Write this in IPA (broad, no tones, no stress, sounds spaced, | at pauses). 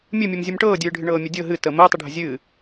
mʲ ɨ mʲ ɨ m zʲ ɨ m ʈ ɤː dʲ ɨː ɖʱ ɨ ɳ ɤː mʲ ɨ dʲ ɤ ɦ ɨ t əː m əː tˤ ɨ ɖʱ ə zʲ ɨː